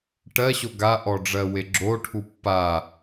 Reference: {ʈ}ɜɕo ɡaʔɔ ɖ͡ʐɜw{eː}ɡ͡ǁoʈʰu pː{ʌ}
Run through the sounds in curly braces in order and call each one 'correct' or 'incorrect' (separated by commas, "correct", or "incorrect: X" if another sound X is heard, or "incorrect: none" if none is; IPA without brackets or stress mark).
correct, incorrect: e, incorrect: a